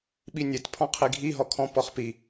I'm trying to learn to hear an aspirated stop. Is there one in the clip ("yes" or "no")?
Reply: yes